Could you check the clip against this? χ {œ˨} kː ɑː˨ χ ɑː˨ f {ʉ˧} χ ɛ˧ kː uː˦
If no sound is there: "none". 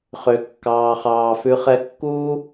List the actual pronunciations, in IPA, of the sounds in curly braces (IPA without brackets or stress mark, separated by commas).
ø˨, ʉ˧